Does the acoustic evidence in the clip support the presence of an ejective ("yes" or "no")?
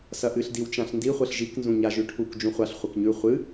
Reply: no